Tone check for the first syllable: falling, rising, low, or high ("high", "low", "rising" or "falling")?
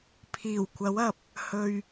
low